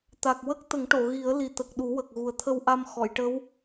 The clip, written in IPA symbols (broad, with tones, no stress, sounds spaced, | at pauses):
t̪ a˨˩ k̚ w ə˦˥ k̚ t̪ ə˨˩˦ ŋ ʈ o˨˩˨ ɣ i˨˩˦ ə̯ l i˨˩ t̪ ə˨˩ k̚ ɗ u˨˩˦ w ə˨˩ k̚ ɣ u˨˩ ə̯ t̪ʰ ə˧ w ʔ a˧ m x ɔ˨˩˨ j ʈ ə˧˥ w